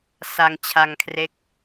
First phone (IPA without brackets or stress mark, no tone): s